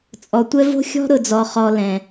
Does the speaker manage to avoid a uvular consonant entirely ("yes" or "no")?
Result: no